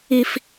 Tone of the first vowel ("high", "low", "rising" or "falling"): high